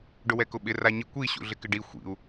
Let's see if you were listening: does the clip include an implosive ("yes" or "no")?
yes